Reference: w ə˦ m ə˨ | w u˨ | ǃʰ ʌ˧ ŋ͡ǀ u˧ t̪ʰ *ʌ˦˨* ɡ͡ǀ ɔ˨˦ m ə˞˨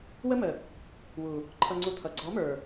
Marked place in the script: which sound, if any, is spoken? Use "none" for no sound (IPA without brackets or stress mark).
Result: ʌ˨